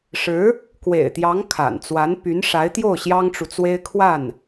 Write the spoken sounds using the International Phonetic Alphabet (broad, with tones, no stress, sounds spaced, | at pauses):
ʂ ɻ̩˧˥ | k w ḛ˨˩ ɪ̯ t̪ j ɑ˧˥ ŋ kʰ a̰˨˩ n t͡s w a˧˥ n p y˧˥ n ʂ a˧˥ ɪ̯ t̪ j o˥˩ ʊ̯ ɕ j ɑ˥ ŋ ʈ͡ʂ u˨ t͡s w e˥ ɪ̯ kʰ w a˥˩ n